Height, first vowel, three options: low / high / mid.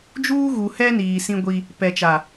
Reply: high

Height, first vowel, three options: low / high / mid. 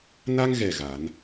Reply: low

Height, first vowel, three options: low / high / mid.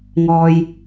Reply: mid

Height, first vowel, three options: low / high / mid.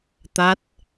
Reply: low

